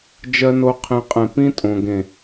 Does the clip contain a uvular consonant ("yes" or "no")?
yes